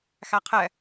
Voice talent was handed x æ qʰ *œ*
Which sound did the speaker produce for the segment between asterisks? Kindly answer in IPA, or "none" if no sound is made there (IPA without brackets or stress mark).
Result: ɛ